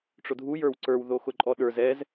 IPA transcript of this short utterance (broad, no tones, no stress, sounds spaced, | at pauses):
ʈ͡ʂ ʊ dʱ u j ə˞ w ǀ ə˞ w ð o x ʊ ǃʼ ɔ ɗ ə˞ z ɛ z